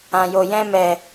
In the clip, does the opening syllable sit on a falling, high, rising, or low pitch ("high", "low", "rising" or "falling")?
low